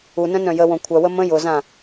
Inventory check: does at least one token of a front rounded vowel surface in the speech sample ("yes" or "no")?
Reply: yes